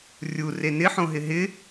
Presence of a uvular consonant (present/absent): absent